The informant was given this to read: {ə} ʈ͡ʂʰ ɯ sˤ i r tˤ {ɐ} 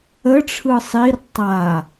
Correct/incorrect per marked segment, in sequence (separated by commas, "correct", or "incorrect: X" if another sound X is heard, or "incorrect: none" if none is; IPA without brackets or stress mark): correct, incorrect: a